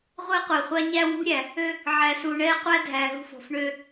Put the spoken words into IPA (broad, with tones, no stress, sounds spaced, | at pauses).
ʁʷ ɛ˦ qʷ æ˨ χʷ ɑ˦ ɲ æ˦ w ṳ˦ ɾʲ æ˨ | ø˦ | ʕ æ˨ s u˨ ɳ ɛː˦ qʷ æ˦ dʱ æ˨ ɦ ṳ˦ f ɔ̤˨ f ɳ ø˦